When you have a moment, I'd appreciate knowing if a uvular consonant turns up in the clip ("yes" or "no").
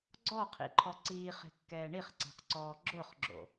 yes